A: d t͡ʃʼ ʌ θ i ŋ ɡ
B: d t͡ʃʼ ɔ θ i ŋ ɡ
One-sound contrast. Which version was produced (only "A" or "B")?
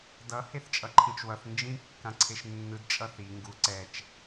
A